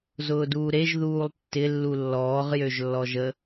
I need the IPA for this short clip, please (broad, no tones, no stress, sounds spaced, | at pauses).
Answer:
z ʊː d uː ɾ e ʒ ð uː lˠ tː ɪ lː u lː ɔː ʁ j ø ʒ lː ɔ ʒ ə